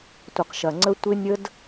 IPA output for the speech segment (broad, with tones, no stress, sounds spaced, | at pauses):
tʷ ə˨ q ʃ ɐ˨ ŋ͡ǀ ə˦ tʷ ɪ˦ nʲ ə˦ d